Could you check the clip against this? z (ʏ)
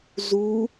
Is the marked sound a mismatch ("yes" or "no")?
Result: yes